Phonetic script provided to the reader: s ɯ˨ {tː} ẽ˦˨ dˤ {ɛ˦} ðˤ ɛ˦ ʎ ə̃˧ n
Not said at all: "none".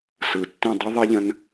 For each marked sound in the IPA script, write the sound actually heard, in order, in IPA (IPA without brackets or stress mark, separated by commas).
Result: tː, e˦